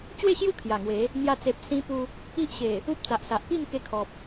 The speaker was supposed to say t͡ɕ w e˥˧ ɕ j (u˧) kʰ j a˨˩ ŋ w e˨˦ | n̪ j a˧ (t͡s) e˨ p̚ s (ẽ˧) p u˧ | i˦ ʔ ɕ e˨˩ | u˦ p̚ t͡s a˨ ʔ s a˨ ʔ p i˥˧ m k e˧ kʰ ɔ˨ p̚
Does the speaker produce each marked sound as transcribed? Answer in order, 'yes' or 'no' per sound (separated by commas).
no, yes, no